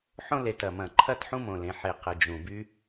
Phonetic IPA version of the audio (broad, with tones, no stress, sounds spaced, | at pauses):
ħ õ˥ l e˩ t ɐ˩ m ɐ̃˩ ǃʰ ɐ˥ t ħ ũ˥ m õ˩ l ẽ˩ ħ e˩ q ə˩ d͡ʒ ũ˩ b y˥